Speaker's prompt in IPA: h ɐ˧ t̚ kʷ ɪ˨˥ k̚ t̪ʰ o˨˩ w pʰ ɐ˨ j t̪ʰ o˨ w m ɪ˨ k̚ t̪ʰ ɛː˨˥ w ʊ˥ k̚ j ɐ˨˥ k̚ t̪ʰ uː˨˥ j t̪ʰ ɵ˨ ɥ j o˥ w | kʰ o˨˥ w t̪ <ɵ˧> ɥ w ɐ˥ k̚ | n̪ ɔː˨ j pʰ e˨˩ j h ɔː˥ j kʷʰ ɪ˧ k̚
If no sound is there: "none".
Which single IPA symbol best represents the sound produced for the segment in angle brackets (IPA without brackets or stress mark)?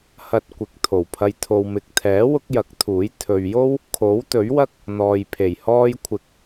ɵ˨˥